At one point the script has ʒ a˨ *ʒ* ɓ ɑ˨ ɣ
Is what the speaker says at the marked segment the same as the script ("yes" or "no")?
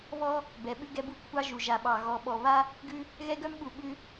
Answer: no